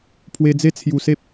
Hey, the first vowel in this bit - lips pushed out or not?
no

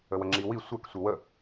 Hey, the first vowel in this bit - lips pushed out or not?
no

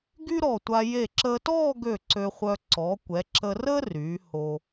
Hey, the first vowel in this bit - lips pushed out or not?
yes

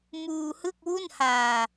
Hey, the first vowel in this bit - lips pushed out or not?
yes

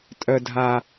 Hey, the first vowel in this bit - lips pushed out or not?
yes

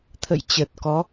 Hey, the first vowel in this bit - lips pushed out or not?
no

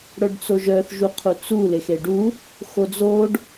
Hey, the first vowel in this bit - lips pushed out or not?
yes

